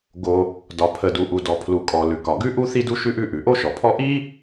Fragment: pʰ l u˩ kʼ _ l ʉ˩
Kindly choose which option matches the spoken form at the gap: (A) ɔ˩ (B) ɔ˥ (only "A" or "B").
A